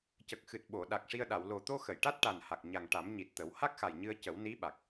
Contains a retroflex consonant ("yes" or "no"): yes